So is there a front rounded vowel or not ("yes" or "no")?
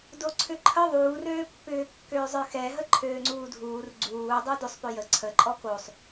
yes